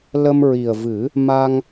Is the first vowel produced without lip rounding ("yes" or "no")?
yes